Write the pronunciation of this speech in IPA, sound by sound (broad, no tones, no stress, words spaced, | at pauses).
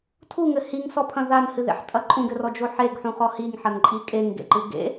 tʰuŋɘ hiŋsɔpʰɐ̃ ðanhɨðḛħtʼɐ ǃʼũɡɘrɔd͡ʒo ħeɡħũχɔ hiŋħɐnǃʼi kʼeŋɡḛǃɨ ɡḛ